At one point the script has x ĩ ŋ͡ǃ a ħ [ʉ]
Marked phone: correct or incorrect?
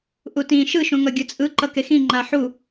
incorrect